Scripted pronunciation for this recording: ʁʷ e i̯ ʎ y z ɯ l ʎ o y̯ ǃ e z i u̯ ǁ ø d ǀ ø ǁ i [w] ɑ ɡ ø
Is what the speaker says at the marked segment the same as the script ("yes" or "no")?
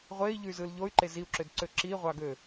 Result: no